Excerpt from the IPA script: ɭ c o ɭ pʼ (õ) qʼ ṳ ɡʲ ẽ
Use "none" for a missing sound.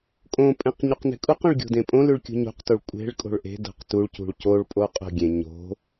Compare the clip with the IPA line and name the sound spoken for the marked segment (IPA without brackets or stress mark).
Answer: o